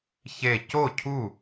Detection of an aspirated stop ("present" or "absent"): present